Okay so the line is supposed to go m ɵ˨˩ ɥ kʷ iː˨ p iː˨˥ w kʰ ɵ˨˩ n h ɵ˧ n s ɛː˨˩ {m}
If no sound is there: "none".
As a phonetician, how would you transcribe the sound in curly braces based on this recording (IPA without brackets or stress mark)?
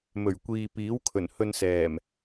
m